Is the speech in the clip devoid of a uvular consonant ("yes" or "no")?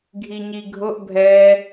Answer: yes